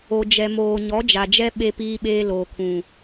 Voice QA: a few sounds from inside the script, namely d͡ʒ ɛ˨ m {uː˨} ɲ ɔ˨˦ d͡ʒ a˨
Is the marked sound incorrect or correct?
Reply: incorrect